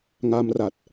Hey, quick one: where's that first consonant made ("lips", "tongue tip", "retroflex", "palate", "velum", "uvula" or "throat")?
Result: velum